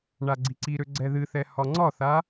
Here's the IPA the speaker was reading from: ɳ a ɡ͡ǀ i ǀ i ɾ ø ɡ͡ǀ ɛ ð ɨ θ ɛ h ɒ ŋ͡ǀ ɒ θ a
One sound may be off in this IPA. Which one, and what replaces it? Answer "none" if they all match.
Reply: none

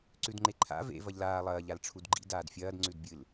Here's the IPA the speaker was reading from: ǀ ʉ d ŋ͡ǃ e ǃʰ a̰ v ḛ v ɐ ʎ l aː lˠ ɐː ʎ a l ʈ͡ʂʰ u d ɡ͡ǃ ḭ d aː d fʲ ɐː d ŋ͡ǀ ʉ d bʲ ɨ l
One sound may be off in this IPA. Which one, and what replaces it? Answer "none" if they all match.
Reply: none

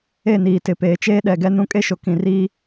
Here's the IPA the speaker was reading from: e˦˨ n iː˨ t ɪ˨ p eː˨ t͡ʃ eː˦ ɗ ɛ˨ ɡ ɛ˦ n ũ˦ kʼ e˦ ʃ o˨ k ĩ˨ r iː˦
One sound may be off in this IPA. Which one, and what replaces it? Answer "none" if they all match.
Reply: none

